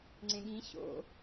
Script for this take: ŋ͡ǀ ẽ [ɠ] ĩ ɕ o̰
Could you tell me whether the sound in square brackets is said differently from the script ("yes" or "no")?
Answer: no